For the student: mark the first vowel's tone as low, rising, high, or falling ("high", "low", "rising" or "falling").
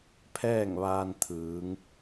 falling